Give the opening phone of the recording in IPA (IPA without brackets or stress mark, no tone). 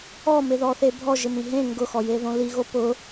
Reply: ɔ